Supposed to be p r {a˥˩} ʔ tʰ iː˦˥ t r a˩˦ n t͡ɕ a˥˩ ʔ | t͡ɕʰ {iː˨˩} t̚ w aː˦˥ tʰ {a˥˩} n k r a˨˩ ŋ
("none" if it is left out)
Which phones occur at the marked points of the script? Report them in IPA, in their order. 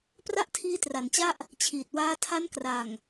a˥˩, iː˨˩, a˦˥

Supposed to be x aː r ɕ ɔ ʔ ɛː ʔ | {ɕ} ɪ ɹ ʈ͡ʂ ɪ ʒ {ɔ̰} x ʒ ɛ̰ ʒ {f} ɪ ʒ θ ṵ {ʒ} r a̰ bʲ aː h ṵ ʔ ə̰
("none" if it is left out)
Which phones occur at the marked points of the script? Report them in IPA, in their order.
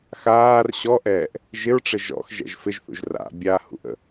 ʒ, ɔ̰, f, ʒ

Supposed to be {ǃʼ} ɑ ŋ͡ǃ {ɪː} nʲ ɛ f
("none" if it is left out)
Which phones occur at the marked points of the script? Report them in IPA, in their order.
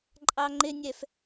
ǃʼ, ɪ

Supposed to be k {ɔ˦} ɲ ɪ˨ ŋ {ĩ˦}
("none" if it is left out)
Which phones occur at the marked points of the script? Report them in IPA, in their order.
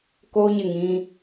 o˦, ĩ˦

